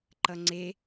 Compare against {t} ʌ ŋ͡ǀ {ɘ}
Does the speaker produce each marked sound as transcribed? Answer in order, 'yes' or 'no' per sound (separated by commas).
no, no